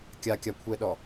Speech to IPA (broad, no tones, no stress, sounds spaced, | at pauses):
kʲ a kʲ a kʷʰ ɛ ɗ ɔ